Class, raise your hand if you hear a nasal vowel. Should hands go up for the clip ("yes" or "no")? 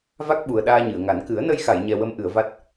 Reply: no